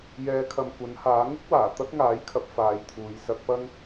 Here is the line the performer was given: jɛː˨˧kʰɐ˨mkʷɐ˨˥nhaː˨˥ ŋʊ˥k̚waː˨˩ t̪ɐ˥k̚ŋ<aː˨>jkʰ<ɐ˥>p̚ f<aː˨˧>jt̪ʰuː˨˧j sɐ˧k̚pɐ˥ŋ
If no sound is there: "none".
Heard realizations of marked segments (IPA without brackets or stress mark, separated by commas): aː˨˥, ɐ˨˥, aː˨˧